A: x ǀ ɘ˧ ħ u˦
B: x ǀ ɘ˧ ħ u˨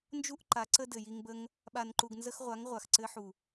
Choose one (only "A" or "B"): B